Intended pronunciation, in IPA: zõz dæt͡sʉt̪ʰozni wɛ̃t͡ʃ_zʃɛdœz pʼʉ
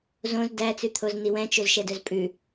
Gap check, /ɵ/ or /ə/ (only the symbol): ɵ